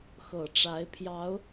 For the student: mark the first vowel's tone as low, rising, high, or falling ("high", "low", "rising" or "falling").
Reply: low